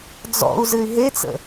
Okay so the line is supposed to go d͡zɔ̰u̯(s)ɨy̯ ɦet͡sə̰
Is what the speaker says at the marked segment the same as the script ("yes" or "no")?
no